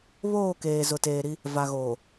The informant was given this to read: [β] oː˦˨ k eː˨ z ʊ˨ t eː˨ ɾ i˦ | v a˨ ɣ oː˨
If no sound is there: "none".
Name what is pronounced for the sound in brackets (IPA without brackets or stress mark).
β